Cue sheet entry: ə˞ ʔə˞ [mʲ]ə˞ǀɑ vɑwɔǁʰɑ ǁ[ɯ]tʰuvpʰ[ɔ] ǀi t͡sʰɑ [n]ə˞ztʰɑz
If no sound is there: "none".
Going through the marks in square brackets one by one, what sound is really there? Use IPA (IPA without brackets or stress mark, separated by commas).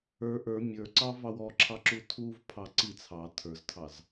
mʲ, u, ɑ, tʰ